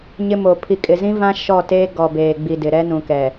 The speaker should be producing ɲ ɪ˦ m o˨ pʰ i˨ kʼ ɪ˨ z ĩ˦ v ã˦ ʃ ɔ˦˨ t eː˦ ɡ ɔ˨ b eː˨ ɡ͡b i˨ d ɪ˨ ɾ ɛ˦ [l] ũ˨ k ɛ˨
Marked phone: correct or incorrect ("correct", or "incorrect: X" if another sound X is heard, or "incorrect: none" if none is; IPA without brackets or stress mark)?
incorrect: n